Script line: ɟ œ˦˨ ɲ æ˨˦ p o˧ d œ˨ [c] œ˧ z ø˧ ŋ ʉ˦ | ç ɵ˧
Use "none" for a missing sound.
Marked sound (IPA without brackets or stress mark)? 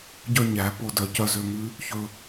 c